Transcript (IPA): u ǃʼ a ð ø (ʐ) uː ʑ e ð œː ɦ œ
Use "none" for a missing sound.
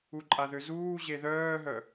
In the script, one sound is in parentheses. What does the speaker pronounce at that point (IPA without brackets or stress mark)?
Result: z